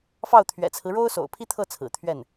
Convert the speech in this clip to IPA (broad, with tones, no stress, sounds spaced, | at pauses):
f ɑ˥˩ ʊ̯ t̪ʰ ɥ ɛ̰˨˩ t͡sʰ ɹ̩˦ ɻ o˥ ʊ̯ s o̰˨˩ ʊ̯ pʰ i˥ t̪ʰ ɤ˥˩ t͡sʰ ɹ̩˨˩ t̪ʰ ɥ ɛ˥˩ n